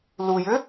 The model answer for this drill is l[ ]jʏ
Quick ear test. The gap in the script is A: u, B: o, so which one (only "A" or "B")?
A